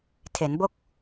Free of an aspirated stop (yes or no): no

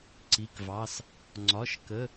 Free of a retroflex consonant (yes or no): yes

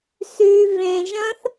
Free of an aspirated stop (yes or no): yes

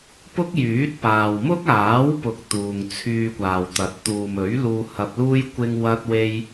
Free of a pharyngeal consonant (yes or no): yes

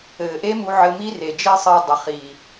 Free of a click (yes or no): yes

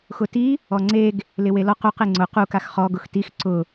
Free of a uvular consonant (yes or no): no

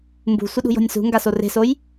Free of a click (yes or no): yes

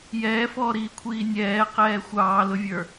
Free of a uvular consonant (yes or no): no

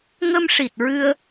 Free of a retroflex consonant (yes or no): no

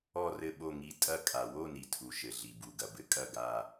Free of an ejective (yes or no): no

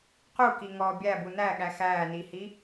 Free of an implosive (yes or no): no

